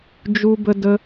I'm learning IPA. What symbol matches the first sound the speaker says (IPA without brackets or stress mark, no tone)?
d͡ʒ